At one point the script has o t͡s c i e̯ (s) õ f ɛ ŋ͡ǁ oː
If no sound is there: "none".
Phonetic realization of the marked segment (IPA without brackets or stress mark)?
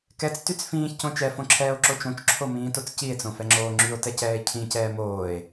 t͡s